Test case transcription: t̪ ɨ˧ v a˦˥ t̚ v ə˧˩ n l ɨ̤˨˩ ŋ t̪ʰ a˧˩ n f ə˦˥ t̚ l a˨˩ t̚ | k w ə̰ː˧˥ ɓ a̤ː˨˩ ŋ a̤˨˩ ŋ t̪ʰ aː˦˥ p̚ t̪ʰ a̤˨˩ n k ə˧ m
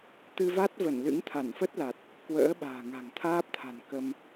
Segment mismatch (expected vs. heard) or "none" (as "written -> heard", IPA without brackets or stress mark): ɨ̤˨˩ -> ɨ̰˧˥